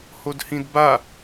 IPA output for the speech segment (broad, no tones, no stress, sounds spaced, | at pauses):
h o d h ĩ d b a